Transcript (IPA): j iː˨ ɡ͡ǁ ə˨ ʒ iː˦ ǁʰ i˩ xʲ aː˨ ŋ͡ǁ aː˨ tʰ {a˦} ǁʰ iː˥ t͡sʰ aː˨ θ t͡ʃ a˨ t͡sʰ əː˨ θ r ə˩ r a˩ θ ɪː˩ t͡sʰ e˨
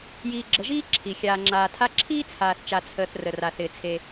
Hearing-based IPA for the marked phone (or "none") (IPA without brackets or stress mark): a˦